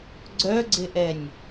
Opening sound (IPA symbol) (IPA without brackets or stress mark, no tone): ɡ͡ǀ